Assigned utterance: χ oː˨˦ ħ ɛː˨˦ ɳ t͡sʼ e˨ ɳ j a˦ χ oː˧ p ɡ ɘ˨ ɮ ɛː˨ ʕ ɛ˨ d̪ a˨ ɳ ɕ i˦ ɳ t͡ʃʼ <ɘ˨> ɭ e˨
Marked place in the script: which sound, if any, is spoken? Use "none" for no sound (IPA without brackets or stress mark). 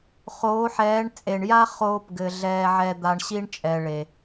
ɛ˨